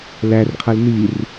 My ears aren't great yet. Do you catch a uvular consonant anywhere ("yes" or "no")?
yes